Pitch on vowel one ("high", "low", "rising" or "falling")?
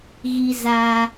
high